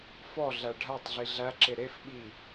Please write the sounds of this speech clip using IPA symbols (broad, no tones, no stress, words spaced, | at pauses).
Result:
fɔɮæ ɖʱætˤɮi ɮæǁe ɾefɓi